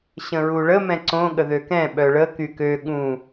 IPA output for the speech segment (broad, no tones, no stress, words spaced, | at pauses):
ɕə̃ɹuɭə mɛ̃ǀõ ɠəðøkɛ̃ ɓœɭə kykø ɠũ